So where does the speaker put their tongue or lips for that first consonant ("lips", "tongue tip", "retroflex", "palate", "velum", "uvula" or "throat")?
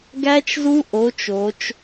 velum